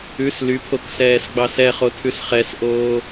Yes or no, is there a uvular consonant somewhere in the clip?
yes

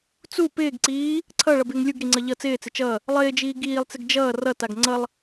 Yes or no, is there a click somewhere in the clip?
yes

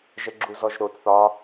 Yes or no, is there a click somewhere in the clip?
yes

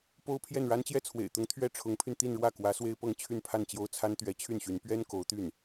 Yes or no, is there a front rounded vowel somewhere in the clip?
yes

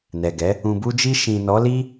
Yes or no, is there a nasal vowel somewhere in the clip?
yes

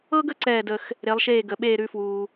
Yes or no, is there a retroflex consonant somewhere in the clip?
no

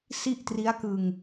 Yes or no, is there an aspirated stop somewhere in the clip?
no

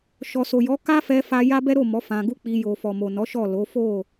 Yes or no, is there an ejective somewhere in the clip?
no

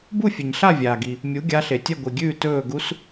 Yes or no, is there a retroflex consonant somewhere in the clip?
no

